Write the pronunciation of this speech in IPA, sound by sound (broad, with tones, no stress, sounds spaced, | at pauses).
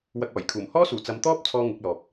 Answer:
w ɐ˧ k̚ ɔː˨˩ j kʰ uː˨˩ m h ɔː˥ s uː˨˩ t͡s ɐ˨˧ m t̪ ɔː˥ p̚ t͡sʰ ɔː˥ ŋ ɪ˨˥ k̚ l ɔː˨ p̚